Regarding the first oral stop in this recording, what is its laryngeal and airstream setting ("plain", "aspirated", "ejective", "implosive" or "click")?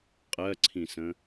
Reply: ejective